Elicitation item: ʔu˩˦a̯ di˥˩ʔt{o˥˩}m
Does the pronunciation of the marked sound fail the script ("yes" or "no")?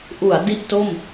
no